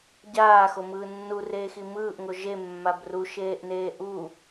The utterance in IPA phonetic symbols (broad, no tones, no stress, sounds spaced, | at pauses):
ɟ aː x o m ɯː nː u r eː x i m ɯː ʔ ŋ o ʒ e mː a b r u ʃ eː ʔ n eː ʔ u